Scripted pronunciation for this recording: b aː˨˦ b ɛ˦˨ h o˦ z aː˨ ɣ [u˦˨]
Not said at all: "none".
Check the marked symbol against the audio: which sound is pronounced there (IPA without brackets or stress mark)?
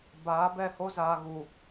u˨